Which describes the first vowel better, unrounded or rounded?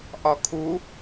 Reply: rounded